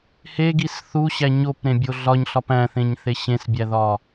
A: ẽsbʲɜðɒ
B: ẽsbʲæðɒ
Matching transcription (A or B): B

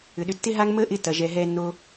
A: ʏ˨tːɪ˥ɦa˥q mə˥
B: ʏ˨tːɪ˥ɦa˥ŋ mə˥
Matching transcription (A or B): B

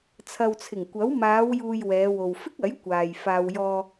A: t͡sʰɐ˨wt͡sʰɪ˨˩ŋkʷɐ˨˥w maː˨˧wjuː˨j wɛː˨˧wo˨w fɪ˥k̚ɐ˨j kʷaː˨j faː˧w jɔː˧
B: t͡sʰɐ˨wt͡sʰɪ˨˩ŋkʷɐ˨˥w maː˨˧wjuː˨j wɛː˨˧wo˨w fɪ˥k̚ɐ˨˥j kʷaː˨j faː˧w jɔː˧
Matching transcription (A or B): B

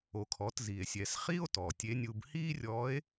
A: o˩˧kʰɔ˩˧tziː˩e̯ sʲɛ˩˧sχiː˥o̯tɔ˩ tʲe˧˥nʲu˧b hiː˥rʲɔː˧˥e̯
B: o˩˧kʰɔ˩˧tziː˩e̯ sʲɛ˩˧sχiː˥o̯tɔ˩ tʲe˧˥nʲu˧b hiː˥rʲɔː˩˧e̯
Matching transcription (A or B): A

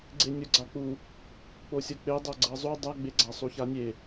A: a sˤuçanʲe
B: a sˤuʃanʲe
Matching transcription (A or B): A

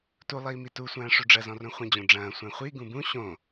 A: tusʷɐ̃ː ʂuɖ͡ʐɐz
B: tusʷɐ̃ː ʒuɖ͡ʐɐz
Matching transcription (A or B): A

